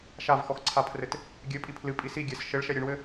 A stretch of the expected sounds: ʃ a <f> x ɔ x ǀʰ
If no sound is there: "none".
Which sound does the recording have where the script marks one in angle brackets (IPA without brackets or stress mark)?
v